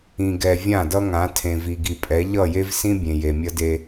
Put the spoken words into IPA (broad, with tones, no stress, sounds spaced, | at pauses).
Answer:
ĩ˨ ɡ ɛ˨ vʲ ã˦˨ d ʌ˦ ŋ ã˨˦ tʰ ẽ˨ v i˨ ɡ i˨ pʼ ɛ˨˦ ʎ ʌ˦˨ j e˦ v s ĩ˦ bʲ ẽ˨ j e˨ mʲ ʌ˦ d e˦